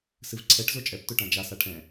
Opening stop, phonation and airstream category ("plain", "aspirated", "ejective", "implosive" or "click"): click